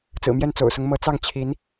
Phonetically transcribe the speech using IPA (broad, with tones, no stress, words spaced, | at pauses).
t͡sɹ̩˨˩mjɛ˥˩n t͡so̰˨˩ʊ̯sʊ˧˥ŋ mɤ˧˥t͡sɑ˥˩ŋ t͡ɕʰi˧˥n